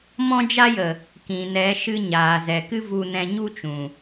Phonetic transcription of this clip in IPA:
mɔ̃˦d͡ʒa˦jə˨ | kĩ˨ nɛ˨˦ʃɨ˧ ɲaː˨zɛ˨ kɨ˦vu˧nɛ̃˧ ɲu˦t͡ʃũ˨

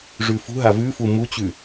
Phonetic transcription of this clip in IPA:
ʐʉfṳɦa vʉ fumut͡ɕʉ

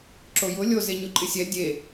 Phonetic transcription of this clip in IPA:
ǁojʊ lʲo zeɲʊǃʼɪsʲɛ dʲe

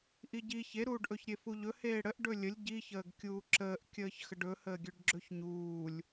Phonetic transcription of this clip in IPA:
ʔiɟi çeɾuːɖʔɵç ɾʲefuʎɵ heːɽəʔ ɖɵlʲəlʲ ɟiçəːɡ kʲuːǁəːʔkʲəːç xəɖɵhəːɡʲɵɖ ɡ͡ǁɵçɲuːlʲ

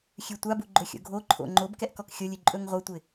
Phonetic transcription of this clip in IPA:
xʲʉtʷabu ɡ͡ǃɵxʲo̰ɡʱoǃʰo̰ ŋ͡ǃob kɛʔkɔkxʲolʲʉ ǃʼɵŋʁʷɐtʷɪ

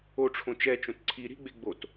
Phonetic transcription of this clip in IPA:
oʈ͡ʂʰõ t͡ʃɛt͡ʃõt ǀʰi ɾi̤ɡ͡be ɡ͡bot

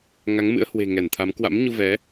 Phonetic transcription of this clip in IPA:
ŋa˨˦ŋmɨ̰˧˥ə̯hwe̤˨˩ ŋɛ˧˩nt̪ʰa˨˦m kwa̰˧˥mɲu˧ vɛ˨˦

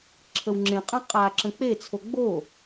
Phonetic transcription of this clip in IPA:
ǁʰəwŋ͡ǁẽqʼã qʼa ǁə̃k͡pet͡sʰo ɡ͡bo

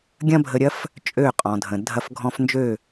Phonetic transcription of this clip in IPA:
ɡʲɐ̃˦bʱə˧ɾʲɐ˦f | t͡ʃʼø˦˨qʼɔ̃˨dʱə̃˨ dʱɐ˧fɡʱɔ̃˧fnd͡ʒø˦˨

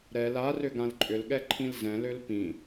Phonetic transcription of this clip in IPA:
ɾɛl arʏ ɡãlǃʼʏlɠɛ ǃʰĩlzɛ̃løl pĩ

